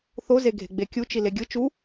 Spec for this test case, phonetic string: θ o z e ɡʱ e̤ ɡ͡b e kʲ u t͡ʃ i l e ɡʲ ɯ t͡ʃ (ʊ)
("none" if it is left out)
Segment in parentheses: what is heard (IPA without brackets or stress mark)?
u